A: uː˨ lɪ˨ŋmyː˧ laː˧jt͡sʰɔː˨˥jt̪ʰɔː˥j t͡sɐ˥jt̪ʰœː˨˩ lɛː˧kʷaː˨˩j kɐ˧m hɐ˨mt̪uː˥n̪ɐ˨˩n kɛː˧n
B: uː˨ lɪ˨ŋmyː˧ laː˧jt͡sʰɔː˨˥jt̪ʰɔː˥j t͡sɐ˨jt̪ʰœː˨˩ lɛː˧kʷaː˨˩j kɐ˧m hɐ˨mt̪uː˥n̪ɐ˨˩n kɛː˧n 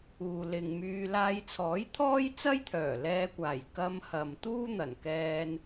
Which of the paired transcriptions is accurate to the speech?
A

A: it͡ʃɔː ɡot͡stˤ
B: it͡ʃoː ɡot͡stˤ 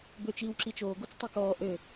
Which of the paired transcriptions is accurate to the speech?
B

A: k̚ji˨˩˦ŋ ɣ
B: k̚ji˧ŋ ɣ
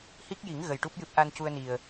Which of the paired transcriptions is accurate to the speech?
A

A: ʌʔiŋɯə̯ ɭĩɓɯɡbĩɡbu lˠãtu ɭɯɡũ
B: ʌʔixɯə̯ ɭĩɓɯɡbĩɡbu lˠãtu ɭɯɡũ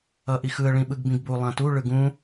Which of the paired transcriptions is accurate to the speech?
B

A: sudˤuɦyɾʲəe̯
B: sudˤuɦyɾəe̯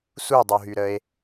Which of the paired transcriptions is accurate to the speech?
B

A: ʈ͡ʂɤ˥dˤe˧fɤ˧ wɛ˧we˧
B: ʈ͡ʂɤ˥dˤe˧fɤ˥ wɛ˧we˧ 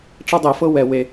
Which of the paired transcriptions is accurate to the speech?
B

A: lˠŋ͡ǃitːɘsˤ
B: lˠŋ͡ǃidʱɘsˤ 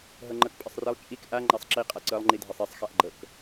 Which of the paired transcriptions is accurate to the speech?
B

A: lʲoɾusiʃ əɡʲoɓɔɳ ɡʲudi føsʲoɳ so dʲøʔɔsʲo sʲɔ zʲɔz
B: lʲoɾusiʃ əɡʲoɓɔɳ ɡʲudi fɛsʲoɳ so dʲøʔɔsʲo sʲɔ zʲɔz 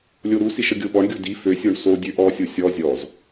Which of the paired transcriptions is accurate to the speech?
A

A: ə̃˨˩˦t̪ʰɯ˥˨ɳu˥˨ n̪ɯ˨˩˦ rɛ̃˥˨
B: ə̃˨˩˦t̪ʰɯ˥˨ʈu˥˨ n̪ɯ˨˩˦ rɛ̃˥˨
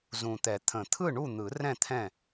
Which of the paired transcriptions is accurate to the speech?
A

